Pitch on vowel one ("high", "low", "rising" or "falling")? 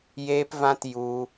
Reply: high